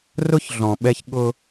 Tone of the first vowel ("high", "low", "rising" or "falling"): high